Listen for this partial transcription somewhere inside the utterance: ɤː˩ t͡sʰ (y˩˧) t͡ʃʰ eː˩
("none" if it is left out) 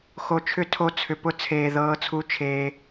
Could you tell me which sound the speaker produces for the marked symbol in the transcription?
u˩˧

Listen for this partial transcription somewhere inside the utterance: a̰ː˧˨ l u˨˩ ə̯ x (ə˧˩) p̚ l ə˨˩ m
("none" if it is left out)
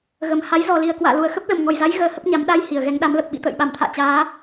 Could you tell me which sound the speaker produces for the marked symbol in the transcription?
ə˦˥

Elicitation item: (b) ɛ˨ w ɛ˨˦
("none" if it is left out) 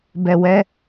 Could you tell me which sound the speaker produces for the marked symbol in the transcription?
b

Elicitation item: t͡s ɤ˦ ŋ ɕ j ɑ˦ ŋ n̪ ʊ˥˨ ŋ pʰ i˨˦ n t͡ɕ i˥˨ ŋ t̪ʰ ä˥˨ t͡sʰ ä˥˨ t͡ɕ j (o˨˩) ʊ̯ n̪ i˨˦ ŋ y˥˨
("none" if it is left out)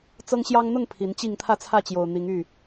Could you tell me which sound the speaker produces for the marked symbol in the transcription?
o˨˩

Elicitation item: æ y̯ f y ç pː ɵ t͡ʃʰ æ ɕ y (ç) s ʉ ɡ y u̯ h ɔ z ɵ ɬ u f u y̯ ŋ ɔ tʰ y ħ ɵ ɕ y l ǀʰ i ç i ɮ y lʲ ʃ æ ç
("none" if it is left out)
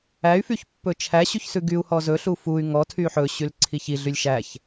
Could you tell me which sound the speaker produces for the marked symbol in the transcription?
ç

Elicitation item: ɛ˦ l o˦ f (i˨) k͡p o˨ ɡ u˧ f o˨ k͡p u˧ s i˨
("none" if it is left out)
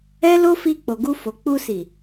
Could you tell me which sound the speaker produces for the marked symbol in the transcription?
i˧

